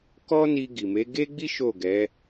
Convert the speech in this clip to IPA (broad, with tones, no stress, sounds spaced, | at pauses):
k ɔ˦ n i˧ ɡ i˨ m e˨˦ ɡ e˦ ɡ͡b i˦ ʃ o˦˨ ɡ ɛ˨˦